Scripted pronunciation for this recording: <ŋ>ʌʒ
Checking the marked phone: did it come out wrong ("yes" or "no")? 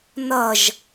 yes